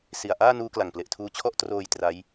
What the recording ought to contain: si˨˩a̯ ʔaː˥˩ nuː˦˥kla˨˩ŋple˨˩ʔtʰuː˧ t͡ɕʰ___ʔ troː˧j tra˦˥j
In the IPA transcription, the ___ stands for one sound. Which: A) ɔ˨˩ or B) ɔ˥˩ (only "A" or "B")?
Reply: B